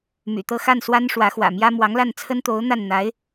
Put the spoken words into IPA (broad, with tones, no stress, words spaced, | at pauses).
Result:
my̰˨˩t̪ɤ˥˧xa˥˩n swa˥nʂwä˧˥xwä̰˨˩mjä˥ mwɑ˧˥ŋla˥˩nt͡sʰə˥n t̪o˧˥ʊ̯n̪a˥˩nn̪a˧˥ɪ̯